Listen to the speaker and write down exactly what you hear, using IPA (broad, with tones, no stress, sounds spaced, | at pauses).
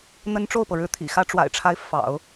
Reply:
n̪ ə˥ n ʈ͡ʂ o˥˩ ʊ̯ p ɤ˩ ɻ ɻ̩˧˥ t̪ʰ ḭ˨˩ x ä˧˥ ʈ͡ʂ w a̰˨˩ ɪ̯ ʈ͡ʂʰ a˧˥ ɪ̯ f ɑ̰˨˩˦ ʊ̯